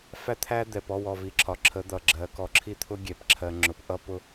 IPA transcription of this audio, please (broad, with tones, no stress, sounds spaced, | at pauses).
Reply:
f æ˦ t̪ʰ æ˦ d̪ ɛ˨ p ɔ˦˨ w ɔ˨ v i˨ ǁʰ ɒ˨ ǁʰ ə˨˦ d̪ ʌ˨ ɡ͡ǁ ɜ˨˦ k ɔ˨ ǁʰ i˦ t̪ʰ ʊ˦ ɡʲ ɛ˨ p ǁʰ ɜ˨ ŋ͡ǁ ʊ˨ p ʔ ʌ˦ p ʊ˦